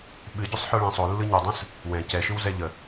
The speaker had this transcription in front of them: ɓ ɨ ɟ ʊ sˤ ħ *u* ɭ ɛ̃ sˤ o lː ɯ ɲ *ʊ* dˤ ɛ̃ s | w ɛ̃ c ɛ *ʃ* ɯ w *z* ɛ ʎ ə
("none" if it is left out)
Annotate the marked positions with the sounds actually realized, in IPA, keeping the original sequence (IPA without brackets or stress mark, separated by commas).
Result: ɯ, ɯ, ʃ, z